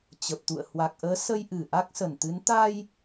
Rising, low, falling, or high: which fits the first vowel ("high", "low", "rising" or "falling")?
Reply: low